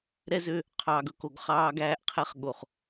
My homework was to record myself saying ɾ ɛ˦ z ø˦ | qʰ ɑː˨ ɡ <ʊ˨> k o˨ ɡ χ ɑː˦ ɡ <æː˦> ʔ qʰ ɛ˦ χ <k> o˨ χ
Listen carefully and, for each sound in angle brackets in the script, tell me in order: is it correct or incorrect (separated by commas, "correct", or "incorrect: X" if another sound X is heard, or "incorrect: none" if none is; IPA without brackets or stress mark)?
incorrect: ɵ˨, correct, incorrect: ɠ